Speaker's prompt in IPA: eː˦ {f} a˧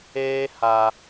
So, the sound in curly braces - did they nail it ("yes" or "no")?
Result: no